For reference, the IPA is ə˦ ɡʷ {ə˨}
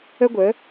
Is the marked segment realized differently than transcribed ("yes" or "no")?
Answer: yes